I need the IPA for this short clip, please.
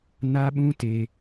n a˦ ɓ ũ˦ t e˦

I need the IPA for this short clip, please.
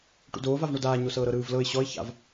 ʈ ṵ d oː v a v ɳ o d aː ɲ o s ɤː ɾ ɤ ɾ ɯː v l ɤ ɪ̯ ɕ ɔ ɪ̯ ç a̰ v

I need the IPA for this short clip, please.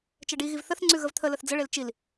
t͡ʃ ɛ ɖ i ɣ i v θ ə θ ŋ͡ǀ ʉ ɣ ə v t̪ʰ ə l ə θ d͡z ə ɭ e l t͡ʃ i l

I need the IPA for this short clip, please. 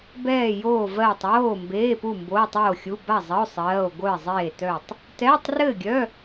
b ɛː˥˨ j oː˥˨ v ɜː˥˨ tˤ w oː˥˨ m b eː˧˥˧ p u˥˨ m b oː˧˥˧ tˤ oː˥˨ xʲ u˧˥˧ b a˥˨ zˤ ə˧˥˧ o̯ sˤ ɜː˧˥˧ o̯ ɡʷ œ˥˨ e̯ zˤ eː˥˨ t œ˥˨ tˤ | t ɛː˧˥˧ tˤ r ɘː˥˨ ɡʲ œ˧˥˧

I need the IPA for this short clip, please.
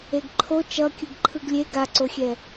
e ɡ ǃʰ o t͡ʃ ʌ kʲ ɯ ɡ ǃʰ ɯ ɡ lʲ e ɡ a ǀ o xʲ ɛ

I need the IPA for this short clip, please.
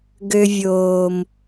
ɡ ø˧ vʲ oː˨ m

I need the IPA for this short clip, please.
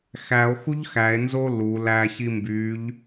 x æ o̯ x u ʎ x æ e̯ n z o l u l æ ç i m b y ʎ

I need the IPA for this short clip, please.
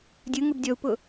dʲ ɯ ŋ ɯ b dʲ ɔ u̯ p ʊ

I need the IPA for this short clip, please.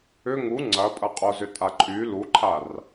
ʏ ŋ u ŋ͡ǀ ɐ pʼ ɐ qʼ o z ʏ tʼ a ǃʼ y l u ǃʰ a r

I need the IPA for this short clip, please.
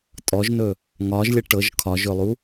tʼ ɔ ʒ n ɵ | ŋ ɒ ʒ lʲ ə ʈ ɤ ʒ kʰ ɒ ʒ ɵ lˠ u

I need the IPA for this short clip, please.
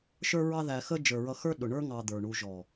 ʃ ə˞˦ ɹ ɑ˦ ð æ˧ x ə˦ d͡ʒ ə˞˨ ɹ ʌ˧ x ə˞˦ ɗ ʊ˨ ɳ ə˞˦ ŋ ɑ˧ d̪ ə˞˨ ɳ u˧ ʒ ɔ˨

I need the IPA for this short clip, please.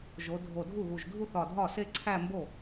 ʒ o˩˧ dʱ o˨˩ dʱ u˥˩ ɣ u˨˩ ʒ dʱ u˥˧ θ ɒ˨˩ dʱ ɒ˥˩ s e˥˧ ǀʰ æ˥˧ m b o˥˩

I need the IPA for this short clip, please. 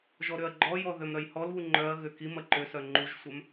ʒ ɔ ɾ ʏ ɐ̯ ɡ͡ǃ ɔ j ɔ ð ø m ɾ œ j h ɔ l β u ŋ͡ǃ œ ɐ̯ ɣ ʏ k i m ɐ ǃ ʏ s œ ŋ͡ǃ u ʒ sʷ œ m

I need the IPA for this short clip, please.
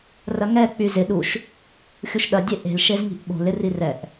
r ɐ ŋ ɛ k͡p y z ɪ ɗ u ʃ | xʲ u ʃ ɗ ɐ dʲ e ʔ e̤ l ʃ e z ŋ i̤ ʔ ɓ o̤ l ɪ r i r ɛ ʔ

